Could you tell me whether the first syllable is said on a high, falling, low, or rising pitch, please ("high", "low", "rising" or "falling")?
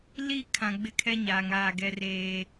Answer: falling